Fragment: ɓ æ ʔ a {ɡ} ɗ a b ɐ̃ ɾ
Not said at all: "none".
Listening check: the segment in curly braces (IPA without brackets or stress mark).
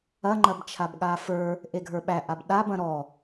b